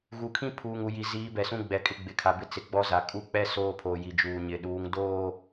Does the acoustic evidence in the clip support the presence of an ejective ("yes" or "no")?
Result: yes